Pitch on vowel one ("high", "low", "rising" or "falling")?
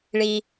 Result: low